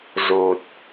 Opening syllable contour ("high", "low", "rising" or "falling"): low